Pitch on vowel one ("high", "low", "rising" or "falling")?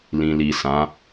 low